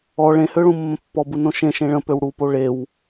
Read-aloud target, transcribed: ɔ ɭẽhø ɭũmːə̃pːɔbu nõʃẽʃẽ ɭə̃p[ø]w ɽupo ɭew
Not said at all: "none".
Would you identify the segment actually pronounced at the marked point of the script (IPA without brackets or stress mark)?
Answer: ø